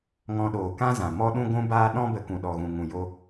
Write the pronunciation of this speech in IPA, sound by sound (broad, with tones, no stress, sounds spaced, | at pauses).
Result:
ŋ ɔ̃˧ ɗ oː˨ k ã˦ z ã˨ m ɔ˦ ɗ ũ˦ ɡʷ ũ˦ b aː˦ ɗ ɔ̃˦ b ə˧ k ũ˨ ɗ ɔ˨ ɣ ũ˨ ŋ ũ˨ j o˧